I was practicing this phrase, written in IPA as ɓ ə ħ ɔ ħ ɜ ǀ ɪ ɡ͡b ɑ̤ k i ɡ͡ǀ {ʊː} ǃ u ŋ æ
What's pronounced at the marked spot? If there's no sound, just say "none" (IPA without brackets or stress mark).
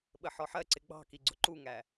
ʊ